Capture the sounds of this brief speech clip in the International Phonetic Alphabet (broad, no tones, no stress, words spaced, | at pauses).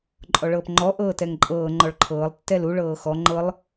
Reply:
ǃʼɔɭɤːpŋ͡ǃɔ ʔɤːtɛŋǃʼɤː ŋ͡ǃɔɭǃʰɤːlˠ tːɛlu ɭɤːxɔ ŋ͡ǃɤlˠ